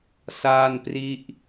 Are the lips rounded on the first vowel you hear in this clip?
no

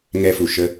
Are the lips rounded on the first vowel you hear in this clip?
no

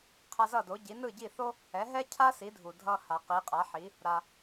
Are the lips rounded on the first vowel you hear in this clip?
no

